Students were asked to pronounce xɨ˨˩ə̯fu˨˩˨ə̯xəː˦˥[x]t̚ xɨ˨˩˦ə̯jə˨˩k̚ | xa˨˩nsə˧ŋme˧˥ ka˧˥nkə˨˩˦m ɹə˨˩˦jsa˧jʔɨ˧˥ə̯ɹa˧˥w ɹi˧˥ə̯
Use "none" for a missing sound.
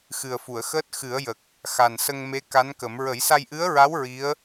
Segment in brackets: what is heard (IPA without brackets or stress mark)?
none